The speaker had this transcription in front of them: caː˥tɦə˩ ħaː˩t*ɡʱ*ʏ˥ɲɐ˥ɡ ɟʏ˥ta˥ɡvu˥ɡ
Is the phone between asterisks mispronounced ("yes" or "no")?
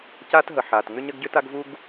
yes